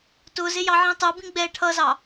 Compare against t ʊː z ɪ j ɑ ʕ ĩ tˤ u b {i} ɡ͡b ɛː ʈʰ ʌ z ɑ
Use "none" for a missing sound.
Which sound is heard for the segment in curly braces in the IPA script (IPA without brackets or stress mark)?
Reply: ĩ